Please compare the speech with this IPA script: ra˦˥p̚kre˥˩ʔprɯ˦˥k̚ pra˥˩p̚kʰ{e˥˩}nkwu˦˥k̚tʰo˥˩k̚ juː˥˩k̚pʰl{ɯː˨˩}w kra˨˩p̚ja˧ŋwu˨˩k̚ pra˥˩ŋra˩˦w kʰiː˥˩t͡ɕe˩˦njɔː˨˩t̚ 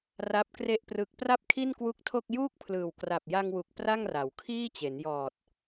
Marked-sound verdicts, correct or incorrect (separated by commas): incorrect, correct